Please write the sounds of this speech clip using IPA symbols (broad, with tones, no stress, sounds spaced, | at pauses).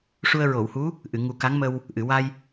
ʂ u˧ ə̯ ɹ o˨˩˨ w h u˧˥ | ʔ ɨ˨˩˨ ŋ u˨˩˦ k a˧˥ ŋ m ə˧ w | ʔ ɨ˨˩˨ w a˧ j